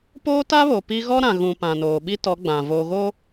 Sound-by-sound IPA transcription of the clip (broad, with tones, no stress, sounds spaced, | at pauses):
p oː˦ t a˦ β o˨ p i˦ ɣ ɔ˦ ɾ ã˨ ɣ ũ˨ p ã˨ n oː˨ ɓ i˦ t ɔ˨˦ ɡ͡b ã˨ v oː˨ ɣ o˦